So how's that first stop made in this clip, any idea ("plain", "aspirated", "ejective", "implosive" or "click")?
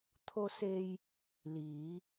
aspirated